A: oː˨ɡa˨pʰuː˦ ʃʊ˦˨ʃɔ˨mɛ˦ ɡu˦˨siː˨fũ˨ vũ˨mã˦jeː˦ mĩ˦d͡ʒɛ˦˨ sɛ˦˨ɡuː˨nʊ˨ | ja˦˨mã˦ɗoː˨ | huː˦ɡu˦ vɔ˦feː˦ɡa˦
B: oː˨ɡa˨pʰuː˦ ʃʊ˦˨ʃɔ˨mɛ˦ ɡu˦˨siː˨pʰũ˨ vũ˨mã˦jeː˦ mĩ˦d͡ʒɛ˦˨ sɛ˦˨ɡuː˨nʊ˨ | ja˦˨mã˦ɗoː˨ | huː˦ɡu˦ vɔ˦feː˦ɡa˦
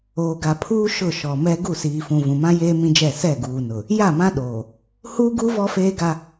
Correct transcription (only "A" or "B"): A